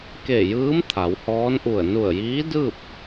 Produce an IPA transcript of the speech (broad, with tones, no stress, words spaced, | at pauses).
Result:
ke˧˩jɯː˧˥m t̪ʰa˩˧whɔː˧˥nʔu˧˩ə̯ nu˧˩ə̯jiː˧˥ dɯː˥˨p̚